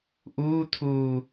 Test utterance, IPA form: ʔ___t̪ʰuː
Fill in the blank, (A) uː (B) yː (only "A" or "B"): A